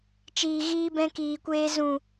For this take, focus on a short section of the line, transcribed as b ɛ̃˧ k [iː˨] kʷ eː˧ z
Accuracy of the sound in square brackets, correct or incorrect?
correct